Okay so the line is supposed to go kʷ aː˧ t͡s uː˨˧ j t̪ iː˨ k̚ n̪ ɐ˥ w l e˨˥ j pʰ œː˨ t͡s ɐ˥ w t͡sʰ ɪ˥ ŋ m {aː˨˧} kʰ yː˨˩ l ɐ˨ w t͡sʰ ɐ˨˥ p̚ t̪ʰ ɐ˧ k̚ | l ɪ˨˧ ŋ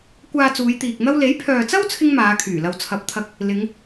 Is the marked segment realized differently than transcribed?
no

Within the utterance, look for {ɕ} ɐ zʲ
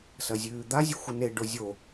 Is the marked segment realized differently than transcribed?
yes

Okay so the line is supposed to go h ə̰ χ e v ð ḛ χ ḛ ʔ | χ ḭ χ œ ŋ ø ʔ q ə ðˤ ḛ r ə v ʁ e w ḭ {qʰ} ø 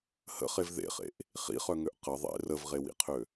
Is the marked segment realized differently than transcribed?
no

